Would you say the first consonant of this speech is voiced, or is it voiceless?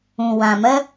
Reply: voiced